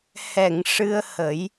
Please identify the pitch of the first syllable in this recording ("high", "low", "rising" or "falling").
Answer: low